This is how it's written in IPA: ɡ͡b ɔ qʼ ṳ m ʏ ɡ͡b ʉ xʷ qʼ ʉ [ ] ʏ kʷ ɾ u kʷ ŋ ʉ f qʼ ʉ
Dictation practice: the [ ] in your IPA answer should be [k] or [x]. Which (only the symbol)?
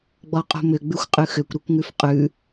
x